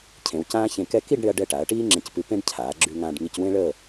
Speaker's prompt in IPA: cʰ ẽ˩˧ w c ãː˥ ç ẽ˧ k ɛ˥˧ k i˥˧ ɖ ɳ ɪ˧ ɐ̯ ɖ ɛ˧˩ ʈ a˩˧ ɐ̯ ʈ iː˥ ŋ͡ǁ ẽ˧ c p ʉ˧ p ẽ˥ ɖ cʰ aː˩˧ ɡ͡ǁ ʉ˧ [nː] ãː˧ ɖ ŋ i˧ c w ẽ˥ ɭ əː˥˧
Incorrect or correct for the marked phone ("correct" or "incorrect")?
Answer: incorrect